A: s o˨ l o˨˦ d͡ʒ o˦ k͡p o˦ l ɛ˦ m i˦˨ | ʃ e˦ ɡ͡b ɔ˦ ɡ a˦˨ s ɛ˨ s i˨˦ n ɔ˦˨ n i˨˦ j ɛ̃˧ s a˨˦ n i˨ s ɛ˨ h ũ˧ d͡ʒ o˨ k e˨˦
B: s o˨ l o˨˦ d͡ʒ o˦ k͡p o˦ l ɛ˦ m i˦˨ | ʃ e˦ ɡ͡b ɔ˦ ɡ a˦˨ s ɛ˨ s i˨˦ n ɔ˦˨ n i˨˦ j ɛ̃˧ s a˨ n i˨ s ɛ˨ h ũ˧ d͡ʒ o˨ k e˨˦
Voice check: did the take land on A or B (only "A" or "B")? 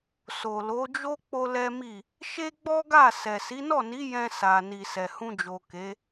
B